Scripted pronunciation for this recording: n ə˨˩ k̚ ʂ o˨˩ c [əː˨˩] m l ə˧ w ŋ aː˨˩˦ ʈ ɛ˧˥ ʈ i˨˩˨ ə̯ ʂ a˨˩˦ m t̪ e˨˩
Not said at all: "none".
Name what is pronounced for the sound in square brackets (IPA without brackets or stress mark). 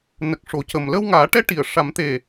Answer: ə˨˩